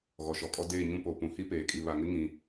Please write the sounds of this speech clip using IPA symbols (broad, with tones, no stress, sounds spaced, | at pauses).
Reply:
ɣ ɔ˨ ʃ ɔ˨ kʼ ɔ˦ d eː˦˨ ɲ ũ˦ p o˨ p ũ˨ h i˦ p eː˨ kʼ i˨ β a˨ ŋ ɪ˦ ŋ ĩ˨